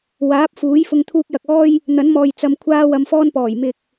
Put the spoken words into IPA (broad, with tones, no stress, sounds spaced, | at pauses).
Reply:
w aː˨˥ p̚ f uː˨˥ j f ʊ˧ ŋ t̪ʰ uː˧ k̚ j ɐ˨ k̚ ɔː˥ j | n̪ ɐ˨˥ n m ɔː˨ j t͡s ɐ˧ m kʷʰ aː˥ w ɐ˧ m f ɔː˥ n p ɔː˨˩ j m ɪ˨ k̚